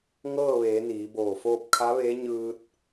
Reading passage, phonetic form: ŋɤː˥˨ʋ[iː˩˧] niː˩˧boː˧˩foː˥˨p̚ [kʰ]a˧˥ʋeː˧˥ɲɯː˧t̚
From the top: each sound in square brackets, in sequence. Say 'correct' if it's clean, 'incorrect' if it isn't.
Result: incorrect, correct

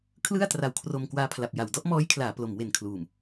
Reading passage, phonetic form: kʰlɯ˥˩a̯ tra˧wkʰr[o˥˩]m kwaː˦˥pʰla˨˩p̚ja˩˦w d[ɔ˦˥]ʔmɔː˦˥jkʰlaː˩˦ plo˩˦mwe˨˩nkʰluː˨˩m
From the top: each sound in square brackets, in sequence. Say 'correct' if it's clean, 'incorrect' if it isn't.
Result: incorrect, correct

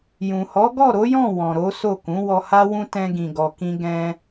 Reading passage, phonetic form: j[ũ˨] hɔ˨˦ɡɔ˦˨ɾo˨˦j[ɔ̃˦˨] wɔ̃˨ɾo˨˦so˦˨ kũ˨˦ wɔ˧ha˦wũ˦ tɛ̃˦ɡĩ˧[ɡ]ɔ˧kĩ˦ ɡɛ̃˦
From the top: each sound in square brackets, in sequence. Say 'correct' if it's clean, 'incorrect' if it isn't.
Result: correct, correct, correct

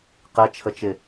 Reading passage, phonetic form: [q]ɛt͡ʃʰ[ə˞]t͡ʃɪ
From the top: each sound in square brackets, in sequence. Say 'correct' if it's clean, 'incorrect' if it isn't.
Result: correct, incorrect

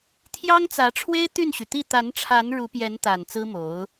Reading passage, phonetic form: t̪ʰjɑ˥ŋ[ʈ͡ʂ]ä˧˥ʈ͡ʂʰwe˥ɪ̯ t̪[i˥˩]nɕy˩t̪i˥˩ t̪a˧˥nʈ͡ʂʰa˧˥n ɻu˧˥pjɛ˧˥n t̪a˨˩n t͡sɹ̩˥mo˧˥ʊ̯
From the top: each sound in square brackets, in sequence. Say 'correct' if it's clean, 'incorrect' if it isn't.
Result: incorrect, incorrect

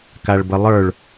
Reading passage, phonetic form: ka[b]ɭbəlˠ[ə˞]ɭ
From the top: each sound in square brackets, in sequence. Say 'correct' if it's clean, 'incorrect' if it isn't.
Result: incorrect, correct

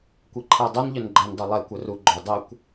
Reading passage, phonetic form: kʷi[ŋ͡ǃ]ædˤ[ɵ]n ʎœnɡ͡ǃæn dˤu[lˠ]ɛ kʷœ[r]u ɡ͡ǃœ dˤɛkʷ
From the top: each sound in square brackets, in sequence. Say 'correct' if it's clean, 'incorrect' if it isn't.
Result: incorrect, correct, correct, correct

